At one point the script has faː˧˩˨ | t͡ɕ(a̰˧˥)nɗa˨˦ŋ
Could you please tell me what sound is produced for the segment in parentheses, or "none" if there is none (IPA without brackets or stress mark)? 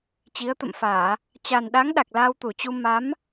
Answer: a˨˩